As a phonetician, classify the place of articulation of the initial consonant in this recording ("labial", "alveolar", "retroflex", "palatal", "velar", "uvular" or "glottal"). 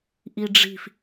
glottal